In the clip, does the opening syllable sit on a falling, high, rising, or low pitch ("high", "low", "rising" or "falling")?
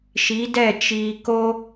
rising